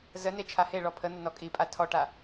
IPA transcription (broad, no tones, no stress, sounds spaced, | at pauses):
z ə n e t͡ʃʰ a h e ɭ ɔ pʰ ə n̪ ə n ɔ kʼ i pʼ a tʰ ɔ ʈ a